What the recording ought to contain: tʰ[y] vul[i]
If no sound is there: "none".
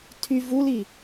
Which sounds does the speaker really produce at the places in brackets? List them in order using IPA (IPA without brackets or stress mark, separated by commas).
y, i